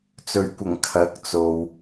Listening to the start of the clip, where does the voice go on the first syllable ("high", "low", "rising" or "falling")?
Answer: low